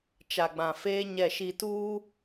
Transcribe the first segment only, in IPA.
t͡ʃ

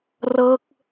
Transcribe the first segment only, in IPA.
r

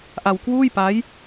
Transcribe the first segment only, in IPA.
ʔ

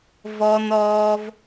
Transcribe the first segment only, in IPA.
v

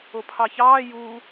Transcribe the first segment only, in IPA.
o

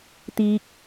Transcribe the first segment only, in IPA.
t̪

